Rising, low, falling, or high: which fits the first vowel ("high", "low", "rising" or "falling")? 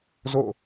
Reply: falling